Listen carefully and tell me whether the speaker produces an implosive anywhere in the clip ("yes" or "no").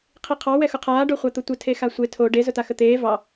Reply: no